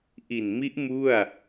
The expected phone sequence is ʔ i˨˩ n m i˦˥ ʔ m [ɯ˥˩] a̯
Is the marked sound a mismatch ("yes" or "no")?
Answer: yes